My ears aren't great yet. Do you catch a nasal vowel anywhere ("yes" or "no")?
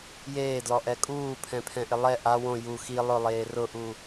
yes